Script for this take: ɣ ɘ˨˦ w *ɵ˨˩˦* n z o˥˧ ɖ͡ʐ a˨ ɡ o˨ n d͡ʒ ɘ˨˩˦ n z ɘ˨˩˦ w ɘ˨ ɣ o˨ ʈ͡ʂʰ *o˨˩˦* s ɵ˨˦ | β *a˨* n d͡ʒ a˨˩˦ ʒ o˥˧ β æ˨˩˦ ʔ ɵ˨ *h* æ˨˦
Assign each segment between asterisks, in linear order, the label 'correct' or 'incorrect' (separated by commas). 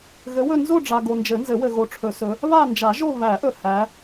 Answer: incorrect, incorrect, incorrect, correct